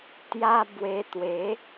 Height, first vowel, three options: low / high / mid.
low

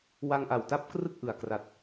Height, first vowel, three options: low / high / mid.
low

